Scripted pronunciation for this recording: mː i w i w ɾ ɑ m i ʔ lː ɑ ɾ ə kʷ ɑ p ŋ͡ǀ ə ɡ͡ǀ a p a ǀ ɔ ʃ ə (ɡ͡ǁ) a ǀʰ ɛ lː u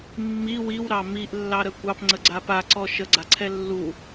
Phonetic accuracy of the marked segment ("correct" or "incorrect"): incorrect